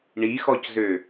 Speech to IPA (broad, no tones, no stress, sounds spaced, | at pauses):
ɳ i x ɔ c z ø